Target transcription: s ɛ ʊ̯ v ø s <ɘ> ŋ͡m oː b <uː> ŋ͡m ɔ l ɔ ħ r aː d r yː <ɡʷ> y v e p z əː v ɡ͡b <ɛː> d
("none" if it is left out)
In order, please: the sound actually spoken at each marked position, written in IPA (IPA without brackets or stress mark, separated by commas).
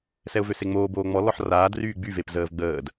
e, oː, ɡ͡b, əː